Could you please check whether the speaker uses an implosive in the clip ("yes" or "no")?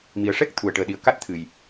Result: yes